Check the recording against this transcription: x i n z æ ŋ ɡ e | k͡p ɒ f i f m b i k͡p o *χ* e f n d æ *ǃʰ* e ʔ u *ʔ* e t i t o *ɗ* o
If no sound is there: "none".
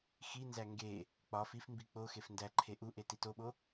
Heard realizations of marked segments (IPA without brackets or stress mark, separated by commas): x, ǃʰ, ʔ, ɓ